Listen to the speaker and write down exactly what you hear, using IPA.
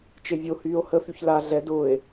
t͡ʃ e vʲ o h yː o̯ h ə f y ç l a ɮ ɛ d ʊː e̯

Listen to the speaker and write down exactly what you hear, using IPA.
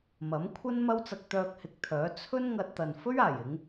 m ɐ˨˥ m kʷʰ ɐ˥ n m ɐ˥ w t͡s ɐ˧ k̚ t̪ œː˧ k̚ h ɪ˨ k̚ t̪ʰ œː˨˥ t͡sʰ ɵ˥ n ŋ ɐ˧ t̚ t̪ ɐ˨ n f ɵ˥ ɥ aː˨˩ j ɪ˨˧ ŋ

